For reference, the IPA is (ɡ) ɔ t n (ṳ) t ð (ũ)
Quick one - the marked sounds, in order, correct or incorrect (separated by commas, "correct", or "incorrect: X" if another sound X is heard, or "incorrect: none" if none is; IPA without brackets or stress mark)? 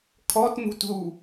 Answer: incorrect: kʰ, correct, incorrect: u